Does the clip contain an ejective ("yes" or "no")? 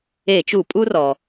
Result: yes